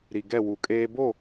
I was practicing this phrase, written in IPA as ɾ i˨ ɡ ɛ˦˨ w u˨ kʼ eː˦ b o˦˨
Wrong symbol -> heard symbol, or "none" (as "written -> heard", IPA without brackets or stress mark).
none